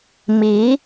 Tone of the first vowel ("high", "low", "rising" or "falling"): rising